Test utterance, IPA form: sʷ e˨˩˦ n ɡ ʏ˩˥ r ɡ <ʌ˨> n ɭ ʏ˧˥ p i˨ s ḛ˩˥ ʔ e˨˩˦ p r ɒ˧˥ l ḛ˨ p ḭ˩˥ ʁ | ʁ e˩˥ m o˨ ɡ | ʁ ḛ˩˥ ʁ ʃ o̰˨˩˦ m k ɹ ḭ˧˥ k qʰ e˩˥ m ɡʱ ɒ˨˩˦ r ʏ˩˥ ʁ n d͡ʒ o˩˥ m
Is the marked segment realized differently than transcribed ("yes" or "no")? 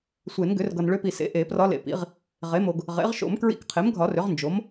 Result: no